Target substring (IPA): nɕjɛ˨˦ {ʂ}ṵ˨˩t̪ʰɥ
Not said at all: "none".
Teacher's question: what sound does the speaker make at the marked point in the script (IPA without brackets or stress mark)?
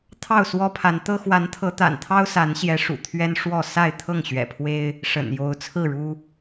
ʂ